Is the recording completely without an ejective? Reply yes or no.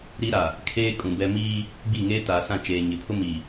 no